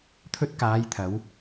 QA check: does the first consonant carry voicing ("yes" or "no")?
no